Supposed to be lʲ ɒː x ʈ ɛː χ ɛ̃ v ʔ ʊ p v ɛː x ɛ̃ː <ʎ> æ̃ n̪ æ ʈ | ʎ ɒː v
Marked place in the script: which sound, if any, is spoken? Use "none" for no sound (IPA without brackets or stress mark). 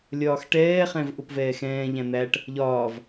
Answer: ʎ